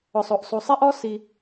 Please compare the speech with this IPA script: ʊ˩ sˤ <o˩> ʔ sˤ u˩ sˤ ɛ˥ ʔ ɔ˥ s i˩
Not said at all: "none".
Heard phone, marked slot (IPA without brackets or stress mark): o˩